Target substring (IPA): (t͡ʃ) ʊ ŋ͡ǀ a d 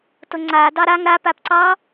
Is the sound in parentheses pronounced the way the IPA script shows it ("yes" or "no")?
no